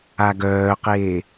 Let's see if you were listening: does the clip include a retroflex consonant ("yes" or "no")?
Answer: no